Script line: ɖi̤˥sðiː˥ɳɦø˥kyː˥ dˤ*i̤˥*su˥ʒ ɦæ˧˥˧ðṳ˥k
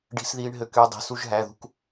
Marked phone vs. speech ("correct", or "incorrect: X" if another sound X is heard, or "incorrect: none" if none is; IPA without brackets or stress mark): incorrect: i̤˧˥˧